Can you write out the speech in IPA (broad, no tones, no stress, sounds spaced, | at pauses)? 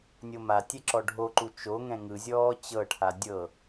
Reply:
nʲ o m a tʲ ɛ ǁ ɔ ɖʱ o ǃ u t͡ʃ o ŋ ɛ̃ ŋ ɯ zʲ ɔː t͡ɕ ɤ ʈʰ a dʲ ɤ